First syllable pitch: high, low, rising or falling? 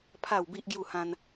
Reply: falling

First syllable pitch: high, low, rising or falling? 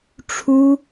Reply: high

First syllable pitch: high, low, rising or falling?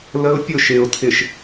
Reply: high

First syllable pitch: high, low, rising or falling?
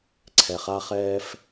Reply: low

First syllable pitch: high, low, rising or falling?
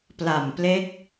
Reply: low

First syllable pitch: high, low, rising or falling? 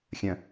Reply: low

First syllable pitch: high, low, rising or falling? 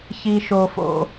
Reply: low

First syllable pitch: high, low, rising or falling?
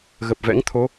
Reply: low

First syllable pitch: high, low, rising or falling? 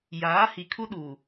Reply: rising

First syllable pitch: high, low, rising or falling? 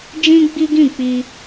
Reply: high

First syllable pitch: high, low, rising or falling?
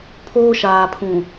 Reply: high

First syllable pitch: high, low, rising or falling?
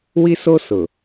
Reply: high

